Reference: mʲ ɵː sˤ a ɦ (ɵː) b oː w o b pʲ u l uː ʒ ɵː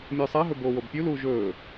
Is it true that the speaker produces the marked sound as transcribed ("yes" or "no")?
no